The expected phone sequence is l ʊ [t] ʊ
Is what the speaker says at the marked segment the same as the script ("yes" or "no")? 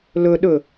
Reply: no